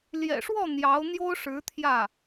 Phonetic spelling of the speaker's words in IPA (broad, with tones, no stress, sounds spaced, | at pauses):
l j ɛ̰˨˩ ʂ w ɔ˥˩ n̪ j ɑ˧˥ ʊ̯ n̪ j o˥ ʊ̯ ʂ ɻ̩˧˥ t̪ʰ j ä˥˩